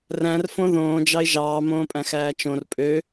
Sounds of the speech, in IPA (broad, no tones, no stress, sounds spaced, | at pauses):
r æ̃ r f õ ð õː d͡ʒ ɑ ɪ̯ ʒ ɑː m õː pʼ æ̃ x æː t͡ʃ õ r pʼ ø